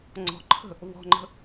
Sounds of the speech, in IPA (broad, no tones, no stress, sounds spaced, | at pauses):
ŋ͡ǀ ɔ̤ ǃʰ ə̤ | v ɔ̤ ŋ͡ǃ ə̤